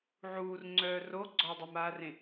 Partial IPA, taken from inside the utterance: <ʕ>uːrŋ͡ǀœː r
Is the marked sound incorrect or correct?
correct